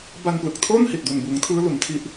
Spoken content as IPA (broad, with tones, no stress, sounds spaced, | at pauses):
b a˧ n p l ɯ˨˩ k̚ tʰ oː˥˩ n h i˨˩ t̚ d u˨˩ n b uː˩˦ ŋ tʰ ɯː˦˥ l u˩˦ n tʰ i˦˥ ʔ